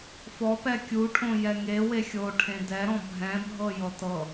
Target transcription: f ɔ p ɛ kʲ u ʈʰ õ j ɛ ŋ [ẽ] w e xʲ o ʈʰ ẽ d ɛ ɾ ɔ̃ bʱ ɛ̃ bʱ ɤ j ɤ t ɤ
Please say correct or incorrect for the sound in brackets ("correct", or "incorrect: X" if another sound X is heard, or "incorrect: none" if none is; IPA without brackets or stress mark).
incorrect: e